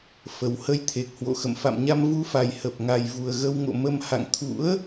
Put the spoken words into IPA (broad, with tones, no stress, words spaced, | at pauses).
fə˨˩whə˧jt̪ʰe˨˩k̚ hwo̰˧˨xə̰˧˨m fa̰˧˨mɲa˧m vu˨˦fa˨˩j hə˨˩p̚ŋa˨˩jvu˨˩ə̯ ɣə˧wŋo̰˧˨mə˧m ha̰˧˨ŋt̪ʰṵ˧˥ə̯